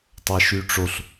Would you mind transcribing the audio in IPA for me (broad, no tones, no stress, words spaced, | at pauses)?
tˤaʃyʈ͡ʂoɬ